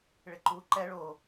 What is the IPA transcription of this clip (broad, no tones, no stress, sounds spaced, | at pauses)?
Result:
ɭ ɪ ǃ u ǃ ɛ ɭ o